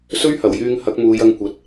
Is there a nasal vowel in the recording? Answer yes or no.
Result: no